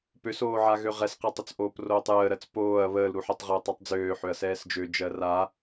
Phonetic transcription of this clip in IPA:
p ø s oː ʕ a ɣ ø ʁ ɛ s q ɛ tˤ ɵ t͡s ʔ oː p r oː tˤ j əː ɾ ɜ t͡s p oː ɐ̯ β əː l ɾ u ħ ɛ tˤ ʁ əː tˤ ɛ tˤ d͡z øː ħ ø ɐ̯ s ɛː s d͡ʒ ø d͡ʒ ɜ r a

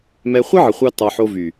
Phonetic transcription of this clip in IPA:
m ɛ˧ χʷ ə˦ ʕ ə˨ χʷ ɑ˦ t ɑ˧ ħ o˧ v y˨

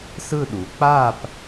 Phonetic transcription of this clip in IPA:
s ɯ˦˨ ɗ u˩˧ k͡p a˦˨ p

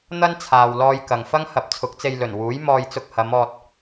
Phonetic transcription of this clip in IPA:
n̪ ɐ˥ n t͡sʰ aː˨ w l ɔː˧ j k ɐ˨ ŋ f ɐ˥ ŋ h ɐ˨˥ p̚ t͡sʰ ʊ˨˥ k̚ t͡s e˧ j l ɵ˨˩ n w uː˨˥ j m ɔː˧ j t͡s ʊ˧ k̚ h ɐ˨˧ m ɔː˧ t̚

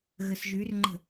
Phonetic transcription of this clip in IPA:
ɣ ə s ʒ y r ŋ͡ǃ ə̤

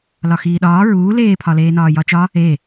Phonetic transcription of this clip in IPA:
l ɒ x iː ɗ ɒː ɹ uː l eː pʰ ɒ l eː n ɒː j ɒ t͡ʃ ɒ | e

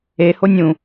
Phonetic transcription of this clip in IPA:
e h o nʲ ũ

